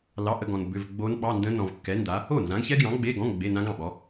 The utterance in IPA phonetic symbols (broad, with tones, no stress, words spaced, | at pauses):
lɑ˧˥˧ʔə˧˥˧ɡɔ̃˨n bʏ˧˥˧v ɡ͡bo˦˥nɓɑ˧˥˧ndə̃˦˥ nɔ̃˨vkːɛ˨˥nda˨˥ | o˥˩nzã˨˥ɡçɛ˦˥ɡjɑ̃˨˥ ɡ͡be˧˥˧ɡɔ̃˧˥˧ŋ ɡ͡be˧˥˧nã˦˥ɡɑ̃˥˩ɓɔ˨˥